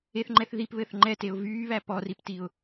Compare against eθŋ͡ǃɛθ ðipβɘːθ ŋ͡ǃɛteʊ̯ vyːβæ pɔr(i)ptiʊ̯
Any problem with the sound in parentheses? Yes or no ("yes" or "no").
no